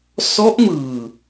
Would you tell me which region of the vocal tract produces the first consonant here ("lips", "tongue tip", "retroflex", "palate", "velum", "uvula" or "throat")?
tongue tip